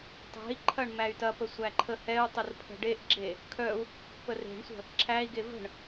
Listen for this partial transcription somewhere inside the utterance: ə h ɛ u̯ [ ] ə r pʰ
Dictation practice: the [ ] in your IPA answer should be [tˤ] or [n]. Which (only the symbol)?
tˤ